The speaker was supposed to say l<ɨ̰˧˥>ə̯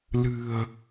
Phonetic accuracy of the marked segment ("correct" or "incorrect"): incorrect